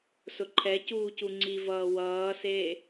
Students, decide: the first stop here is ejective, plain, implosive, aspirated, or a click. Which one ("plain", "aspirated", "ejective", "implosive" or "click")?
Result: click